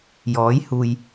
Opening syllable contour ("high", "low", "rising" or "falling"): rising